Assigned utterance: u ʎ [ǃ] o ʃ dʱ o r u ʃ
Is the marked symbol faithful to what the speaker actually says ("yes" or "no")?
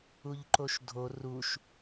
yes